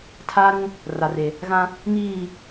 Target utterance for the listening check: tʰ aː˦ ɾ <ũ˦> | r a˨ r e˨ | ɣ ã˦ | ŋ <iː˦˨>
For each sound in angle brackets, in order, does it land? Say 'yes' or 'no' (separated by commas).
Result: yes, yes